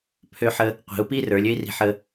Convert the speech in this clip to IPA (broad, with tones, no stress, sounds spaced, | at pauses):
pʰ ø˧ ħ ə˧ | qʷ i̤˩˧ u̯ p i˥ r ə˞˩˧ lʲ ø˥ i̯ r i̤˧ ħ ə˧